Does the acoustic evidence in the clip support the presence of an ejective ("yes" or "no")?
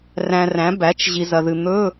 no